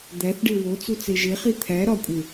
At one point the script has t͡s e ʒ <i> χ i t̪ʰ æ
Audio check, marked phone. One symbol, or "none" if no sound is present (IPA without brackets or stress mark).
e